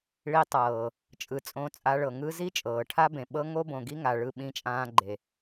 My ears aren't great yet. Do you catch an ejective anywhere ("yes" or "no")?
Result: yes